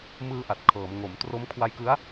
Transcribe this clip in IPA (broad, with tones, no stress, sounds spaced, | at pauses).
m ɯː˧ ʔ a˨˩ t̚ kʰ ɤː˩˦ m ŋ o˩˦ m t r o˦˥ m kʰ w a˧ j k ɯ˦˥ a̯